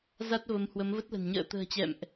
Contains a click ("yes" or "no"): no